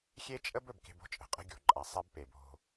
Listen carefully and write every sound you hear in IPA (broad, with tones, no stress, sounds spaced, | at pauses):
xʲ e˦ t͡ʃʼ ə˦ b ɵ˨ b k e̤˦ b o̤˦ t͡ʃʼ ə̤˨ qʼ ə̤˦ ɡʲ o̤˨ ǃʼ a˨ sˤ ɛ˦ b p e˨ b o̤˦